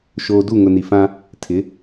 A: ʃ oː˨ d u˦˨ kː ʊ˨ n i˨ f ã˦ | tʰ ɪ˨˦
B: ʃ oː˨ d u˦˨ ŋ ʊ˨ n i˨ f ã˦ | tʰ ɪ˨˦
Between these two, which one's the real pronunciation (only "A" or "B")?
B